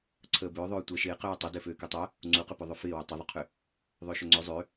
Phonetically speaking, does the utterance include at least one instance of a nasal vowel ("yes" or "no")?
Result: no